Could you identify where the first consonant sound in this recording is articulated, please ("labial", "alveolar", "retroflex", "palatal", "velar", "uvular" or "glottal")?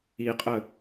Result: uvular